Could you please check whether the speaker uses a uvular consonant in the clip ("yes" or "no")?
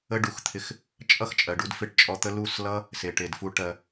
no